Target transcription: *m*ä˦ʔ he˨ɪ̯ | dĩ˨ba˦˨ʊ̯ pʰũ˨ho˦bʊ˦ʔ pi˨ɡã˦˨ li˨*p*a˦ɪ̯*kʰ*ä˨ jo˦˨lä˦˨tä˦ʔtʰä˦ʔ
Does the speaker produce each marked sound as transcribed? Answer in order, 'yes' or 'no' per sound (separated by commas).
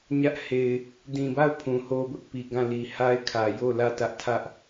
no, no, yes